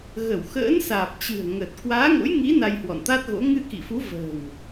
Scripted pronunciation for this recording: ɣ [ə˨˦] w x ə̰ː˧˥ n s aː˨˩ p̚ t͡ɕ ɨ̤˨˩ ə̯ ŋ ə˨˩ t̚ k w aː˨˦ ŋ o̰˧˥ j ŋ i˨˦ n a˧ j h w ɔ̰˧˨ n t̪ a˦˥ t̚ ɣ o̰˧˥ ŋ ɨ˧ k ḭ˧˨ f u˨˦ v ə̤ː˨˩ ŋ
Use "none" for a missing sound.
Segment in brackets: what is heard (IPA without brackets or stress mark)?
ə˧˩